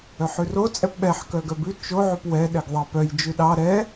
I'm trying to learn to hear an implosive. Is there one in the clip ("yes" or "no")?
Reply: yes